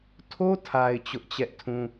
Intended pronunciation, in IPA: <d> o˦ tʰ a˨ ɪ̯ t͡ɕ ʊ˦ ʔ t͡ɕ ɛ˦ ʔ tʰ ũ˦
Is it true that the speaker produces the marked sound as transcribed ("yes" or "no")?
no